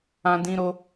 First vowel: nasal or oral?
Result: nasal